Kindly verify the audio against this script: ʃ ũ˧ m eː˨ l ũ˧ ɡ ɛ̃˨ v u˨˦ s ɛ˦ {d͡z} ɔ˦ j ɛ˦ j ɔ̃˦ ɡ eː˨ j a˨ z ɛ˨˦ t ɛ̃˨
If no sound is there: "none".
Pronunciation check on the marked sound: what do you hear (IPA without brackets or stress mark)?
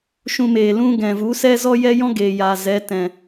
z